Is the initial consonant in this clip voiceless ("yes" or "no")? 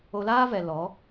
no